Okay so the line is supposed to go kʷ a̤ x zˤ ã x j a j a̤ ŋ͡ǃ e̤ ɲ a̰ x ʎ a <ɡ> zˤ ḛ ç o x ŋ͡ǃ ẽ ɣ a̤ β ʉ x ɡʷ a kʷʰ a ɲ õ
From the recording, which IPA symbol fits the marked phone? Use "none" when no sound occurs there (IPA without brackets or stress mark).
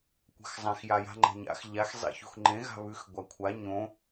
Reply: x